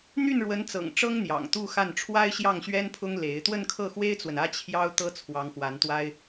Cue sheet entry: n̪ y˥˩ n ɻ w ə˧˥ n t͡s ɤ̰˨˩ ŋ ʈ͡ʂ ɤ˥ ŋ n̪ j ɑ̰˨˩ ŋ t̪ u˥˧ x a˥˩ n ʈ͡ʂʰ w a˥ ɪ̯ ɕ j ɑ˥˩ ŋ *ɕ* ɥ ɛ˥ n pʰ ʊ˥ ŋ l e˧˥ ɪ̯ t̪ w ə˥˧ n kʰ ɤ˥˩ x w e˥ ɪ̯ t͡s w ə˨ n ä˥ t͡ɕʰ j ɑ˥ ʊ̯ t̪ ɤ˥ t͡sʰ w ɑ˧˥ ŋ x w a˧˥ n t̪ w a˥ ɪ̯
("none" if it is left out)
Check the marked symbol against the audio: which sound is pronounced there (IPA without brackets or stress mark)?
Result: ɕ